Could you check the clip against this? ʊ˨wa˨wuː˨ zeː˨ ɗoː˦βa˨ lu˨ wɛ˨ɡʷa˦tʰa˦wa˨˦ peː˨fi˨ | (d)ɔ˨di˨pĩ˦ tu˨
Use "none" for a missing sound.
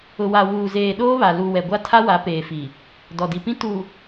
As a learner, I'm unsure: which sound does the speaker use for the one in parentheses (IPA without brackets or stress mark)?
d